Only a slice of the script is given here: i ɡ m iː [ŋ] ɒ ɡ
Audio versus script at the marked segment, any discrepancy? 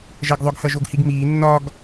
yes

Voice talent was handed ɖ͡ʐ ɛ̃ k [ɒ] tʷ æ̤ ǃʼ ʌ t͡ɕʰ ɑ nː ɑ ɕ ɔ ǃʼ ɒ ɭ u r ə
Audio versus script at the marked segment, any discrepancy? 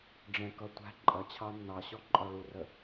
yes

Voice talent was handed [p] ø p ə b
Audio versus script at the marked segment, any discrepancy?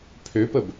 yes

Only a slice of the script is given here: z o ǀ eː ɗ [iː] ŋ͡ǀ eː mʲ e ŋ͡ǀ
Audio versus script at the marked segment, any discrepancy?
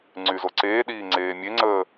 no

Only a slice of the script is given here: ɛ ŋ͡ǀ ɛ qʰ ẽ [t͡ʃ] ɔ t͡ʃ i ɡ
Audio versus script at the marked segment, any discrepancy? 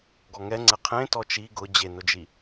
yes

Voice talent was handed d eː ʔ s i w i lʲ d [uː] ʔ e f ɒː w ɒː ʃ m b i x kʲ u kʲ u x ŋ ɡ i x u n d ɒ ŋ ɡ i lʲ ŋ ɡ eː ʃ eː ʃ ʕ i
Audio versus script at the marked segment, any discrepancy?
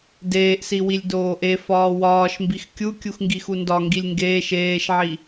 yes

